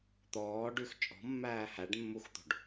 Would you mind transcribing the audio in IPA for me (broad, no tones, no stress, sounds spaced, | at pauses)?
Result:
t̪ ɔː ɖ ʉ x t͡ʃʼ ɔ̤ mː æː h æ ɖ mː u x t̪ o̤ ɖ